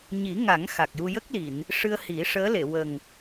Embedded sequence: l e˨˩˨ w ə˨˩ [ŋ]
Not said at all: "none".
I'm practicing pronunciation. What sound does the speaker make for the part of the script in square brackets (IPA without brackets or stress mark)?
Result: ŋ